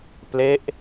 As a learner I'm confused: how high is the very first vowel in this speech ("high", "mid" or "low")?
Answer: mid